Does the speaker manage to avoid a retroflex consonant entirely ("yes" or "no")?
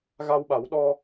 yes